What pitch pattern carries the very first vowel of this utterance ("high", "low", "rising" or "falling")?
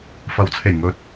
rising